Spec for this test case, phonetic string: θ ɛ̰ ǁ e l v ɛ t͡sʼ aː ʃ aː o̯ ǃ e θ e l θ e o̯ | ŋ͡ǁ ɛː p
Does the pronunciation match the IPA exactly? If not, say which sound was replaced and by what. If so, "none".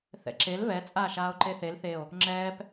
none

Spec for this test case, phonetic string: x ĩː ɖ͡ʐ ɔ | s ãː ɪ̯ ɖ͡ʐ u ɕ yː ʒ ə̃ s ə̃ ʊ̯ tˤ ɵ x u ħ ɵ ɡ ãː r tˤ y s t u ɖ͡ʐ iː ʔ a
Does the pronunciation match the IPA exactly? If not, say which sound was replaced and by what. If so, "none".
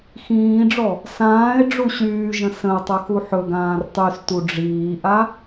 none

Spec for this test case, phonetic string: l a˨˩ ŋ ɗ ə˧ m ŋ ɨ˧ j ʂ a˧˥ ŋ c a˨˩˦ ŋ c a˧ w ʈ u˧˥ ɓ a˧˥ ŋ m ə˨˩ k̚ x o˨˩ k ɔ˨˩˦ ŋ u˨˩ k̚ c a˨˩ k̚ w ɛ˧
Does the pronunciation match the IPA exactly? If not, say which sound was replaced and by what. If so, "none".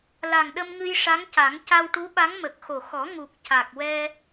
k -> x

